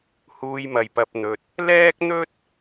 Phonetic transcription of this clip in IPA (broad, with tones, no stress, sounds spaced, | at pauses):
h uː˧ j m ɐ˨ j p ɐ˧ p̚ n̪ ɵ˧ t̚ | l ɛː˥ k̚ n̪ ɵ˥ t̚